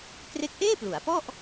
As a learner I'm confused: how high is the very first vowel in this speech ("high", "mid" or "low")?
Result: mid